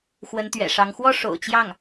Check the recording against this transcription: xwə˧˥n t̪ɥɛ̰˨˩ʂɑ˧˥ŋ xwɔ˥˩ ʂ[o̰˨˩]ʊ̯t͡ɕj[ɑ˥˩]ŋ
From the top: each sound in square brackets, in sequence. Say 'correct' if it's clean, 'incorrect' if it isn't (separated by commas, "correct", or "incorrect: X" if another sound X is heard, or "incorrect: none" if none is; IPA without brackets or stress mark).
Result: correct, correct